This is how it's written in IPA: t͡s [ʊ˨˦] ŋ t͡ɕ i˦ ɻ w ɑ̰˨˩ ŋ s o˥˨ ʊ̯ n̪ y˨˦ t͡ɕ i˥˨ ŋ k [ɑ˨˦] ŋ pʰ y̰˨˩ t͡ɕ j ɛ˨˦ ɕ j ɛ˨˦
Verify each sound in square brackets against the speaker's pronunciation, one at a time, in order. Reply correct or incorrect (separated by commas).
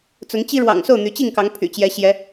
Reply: correct, correct